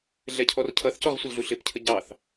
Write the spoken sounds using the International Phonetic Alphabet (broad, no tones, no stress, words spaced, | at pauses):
ɮɛcʰɔrcʰʌθcɔʁ sʷɪlɮuɬɪpcʰə ɟɑθ